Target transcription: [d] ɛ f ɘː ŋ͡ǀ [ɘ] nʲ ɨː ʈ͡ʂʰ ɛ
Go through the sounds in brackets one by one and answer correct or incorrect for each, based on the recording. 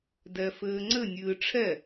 correct, correct

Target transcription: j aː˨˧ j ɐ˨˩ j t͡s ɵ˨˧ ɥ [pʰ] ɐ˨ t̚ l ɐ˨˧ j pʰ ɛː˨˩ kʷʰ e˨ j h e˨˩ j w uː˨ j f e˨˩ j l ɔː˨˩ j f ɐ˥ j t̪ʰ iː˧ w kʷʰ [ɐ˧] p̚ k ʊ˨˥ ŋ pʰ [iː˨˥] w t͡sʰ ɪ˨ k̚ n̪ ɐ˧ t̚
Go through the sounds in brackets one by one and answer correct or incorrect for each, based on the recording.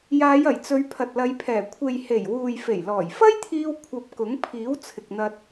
correct, correct, correct

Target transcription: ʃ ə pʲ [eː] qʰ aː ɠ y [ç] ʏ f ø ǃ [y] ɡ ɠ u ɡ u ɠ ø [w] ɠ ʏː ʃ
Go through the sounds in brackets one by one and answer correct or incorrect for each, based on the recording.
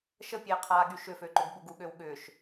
correct, incorrect, incorrect, correct

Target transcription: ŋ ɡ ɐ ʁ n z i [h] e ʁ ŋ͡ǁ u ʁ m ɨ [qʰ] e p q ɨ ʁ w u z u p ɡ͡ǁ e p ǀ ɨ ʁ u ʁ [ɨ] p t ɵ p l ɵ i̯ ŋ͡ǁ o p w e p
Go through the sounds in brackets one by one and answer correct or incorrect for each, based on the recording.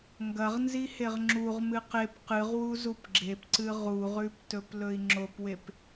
correct, incorrect, incorrect

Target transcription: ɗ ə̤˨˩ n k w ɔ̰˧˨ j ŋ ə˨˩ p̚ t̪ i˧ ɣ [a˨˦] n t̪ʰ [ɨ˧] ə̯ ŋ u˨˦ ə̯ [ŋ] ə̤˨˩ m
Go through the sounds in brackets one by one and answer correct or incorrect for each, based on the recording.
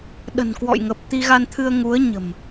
incorrect, correct, incorrect

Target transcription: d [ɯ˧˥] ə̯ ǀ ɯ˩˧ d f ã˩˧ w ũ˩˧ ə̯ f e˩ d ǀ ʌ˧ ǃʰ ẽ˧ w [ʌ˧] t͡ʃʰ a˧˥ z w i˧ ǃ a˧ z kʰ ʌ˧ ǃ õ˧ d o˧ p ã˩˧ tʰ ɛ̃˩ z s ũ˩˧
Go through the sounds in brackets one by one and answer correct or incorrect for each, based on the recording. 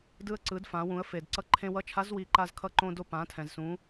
incorrect, incorrect

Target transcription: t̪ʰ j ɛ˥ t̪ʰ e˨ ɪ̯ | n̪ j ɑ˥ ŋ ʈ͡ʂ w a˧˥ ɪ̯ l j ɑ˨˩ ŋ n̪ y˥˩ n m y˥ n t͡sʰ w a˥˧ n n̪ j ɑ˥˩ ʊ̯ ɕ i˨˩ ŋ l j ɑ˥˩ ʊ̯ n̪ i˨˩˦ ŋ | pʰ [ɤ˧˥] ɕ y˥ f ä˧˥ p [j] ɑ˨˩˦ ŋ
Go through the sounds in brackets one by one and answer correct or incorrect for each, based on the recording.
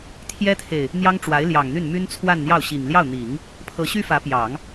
correct, correct

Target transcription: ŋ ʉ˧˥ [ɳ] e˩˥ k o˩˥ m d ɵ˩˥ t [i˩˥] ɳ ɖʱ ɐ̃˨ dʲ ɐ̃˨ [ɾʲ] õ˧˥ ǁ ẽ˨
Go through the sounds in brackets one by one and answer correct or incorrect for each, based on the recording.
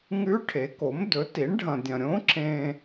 incorrect, correct, correct

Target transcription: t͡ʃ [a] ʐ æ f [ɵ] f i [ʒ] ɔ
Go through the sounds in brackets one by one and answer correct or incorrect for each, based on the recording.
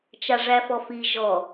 correct, incorrect, correct

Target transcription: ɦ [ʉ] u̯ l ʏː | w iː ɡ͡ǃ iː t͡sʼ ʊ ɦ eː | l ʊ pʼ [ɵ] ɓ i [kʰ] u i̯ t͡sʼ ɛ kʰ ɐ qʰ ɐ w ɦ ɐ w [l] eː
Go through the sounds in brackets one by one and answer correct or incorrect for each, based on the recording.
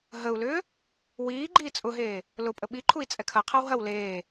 incorrect, incorrect, incorrect, correct

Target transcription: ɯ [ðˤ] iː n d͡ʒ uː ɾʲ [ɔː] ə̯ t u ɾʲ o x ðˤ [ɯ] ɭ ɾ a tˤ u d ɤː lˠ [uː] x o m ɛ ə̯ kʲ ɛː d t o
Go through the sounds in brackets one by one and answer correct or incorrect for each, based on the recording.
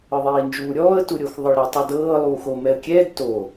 correct, correct, correct, correct

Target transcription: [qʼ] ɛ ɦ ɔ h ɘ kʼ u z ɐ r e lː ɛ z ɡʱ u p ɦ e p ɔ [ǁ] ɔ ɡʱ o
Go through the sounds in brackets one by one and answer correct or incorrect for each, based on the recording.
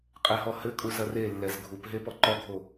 correct, incorrect

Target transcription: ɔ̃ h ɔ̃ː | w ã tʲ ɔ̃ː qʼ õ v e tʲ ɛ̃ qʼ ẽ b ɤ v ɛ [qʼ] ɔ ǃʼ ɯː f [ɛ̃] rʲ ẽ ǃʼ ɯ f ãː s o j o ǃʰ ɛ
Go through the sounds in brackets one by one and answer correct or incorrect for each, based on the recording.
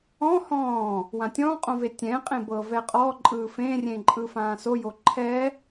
correct, incorrect

